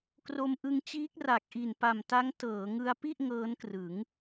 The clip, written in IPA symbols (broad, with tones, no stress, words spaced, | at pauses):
kro˧mʔɯ˧ŋt͡ɕiː˦˥k̚ra˨˩k̚ ʔi˨˩npa˨˩mta˦˥ŋ tɤː˩˦ŋɯ˧a̯ pi˥˩ʔ ŋɤː˦˥nkrɯ˩˦ŋ